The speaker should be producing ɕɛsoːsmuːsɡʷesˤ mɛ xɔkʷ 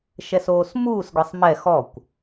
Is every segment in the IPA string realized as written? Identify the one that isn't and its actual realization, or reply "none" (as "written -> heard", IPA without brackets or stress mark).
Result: ɕ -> ʃ